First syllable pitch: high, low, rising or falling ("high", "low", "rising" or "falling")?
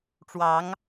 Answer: rising